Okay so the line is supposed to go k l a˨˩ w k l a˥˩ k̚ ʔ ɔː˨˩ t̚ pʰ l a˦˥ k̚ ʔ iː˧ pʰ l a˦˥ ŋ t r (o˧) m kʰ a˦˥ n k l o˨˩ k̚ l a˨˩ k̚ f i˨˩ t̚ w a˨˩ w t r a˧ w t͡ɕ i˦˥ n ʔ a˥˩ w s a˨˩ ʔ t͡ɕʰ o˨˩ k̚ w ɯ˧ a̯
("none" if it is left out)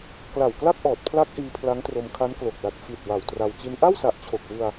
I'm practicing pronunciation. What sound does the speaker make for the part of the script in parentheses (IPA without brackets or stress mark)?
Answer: o˧